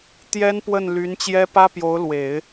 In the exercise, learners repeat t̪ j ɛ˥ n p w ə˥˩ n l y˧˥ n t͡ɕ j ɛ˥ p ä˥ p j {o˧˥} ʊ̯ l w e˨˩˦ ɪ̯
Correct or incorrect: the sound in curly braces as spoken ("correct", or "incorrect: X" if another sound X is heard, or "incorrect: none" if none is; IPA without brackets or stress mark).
correct